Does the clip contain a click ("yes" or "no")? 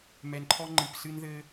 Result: yes